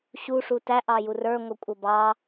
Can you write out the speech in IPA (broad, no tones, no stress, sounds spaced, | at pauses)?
ɕ u ʂ u t æ ʔ ɑ j u r ə˞ ŋʷ ʌ kʷʼ ʌ b ɑ